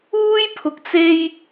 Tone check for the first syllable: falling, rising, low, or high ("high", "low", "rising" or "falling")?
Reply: high